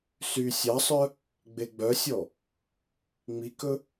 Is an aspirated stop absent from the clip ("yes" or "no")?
yes